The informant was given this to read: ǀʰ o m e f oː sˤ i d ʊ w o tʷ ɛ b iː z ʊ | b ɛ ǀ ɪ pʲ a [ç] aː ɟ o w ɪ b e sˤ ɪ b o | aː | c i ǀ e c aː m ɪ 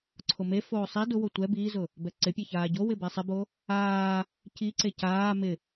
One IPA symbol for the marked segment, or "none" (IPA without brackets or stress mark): ç